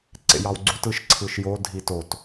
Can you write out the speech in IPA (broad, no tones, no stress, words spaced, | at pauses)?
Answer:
ǀḛjɑwɡ͡ǀut ɯʃǀʰɯʃjo dʱitot